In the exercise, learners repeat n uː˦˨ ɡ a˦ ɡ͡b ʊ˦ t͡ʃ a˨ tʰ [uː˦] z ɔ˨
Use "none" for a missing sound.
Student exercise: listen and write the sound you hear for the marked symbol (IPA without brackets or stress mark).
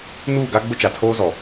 oː˦